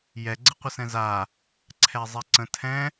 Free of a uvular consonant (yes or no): no